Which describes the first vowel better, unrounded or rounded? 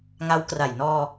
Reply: unrounded